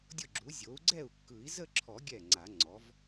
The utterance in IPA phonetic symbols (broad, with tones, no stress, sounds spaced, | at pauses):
dʲ ʊ˥˩ ɡ͡ǁ u˩˥ zʲ o˩˥ u̯ ɡ͡ǀ ɛ˥˩ u̯ kː ɯ˨˩˦ i̯ z ə˥˧ ǁʰ ɔ˨˩˦ ɡʲ ɛ˥˩ ŋ͡ǀ a˨˩˦ ŋ͡ǀ ɔ˩˥ v